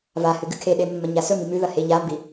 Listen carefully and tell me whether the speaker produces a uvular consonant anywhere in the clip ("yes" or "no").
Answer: no